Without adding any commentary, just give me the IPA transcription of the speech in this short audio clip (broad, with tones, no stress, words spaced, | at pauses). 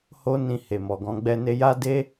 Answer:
ho˦nĩ˧ he˨mɔ˨ɡɔ̃˧ ɡ͡bɛ˧ne˧ja˦de˦